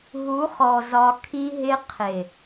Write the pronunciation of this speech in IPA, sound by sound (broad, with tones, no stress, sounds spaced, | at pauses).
ɦ u˨˦ χ ɔ˨ z ɒ˧ kʰ i˧ ɦ ɪ˧ qʰ ɪ˨